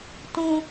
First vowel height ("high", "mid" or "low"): high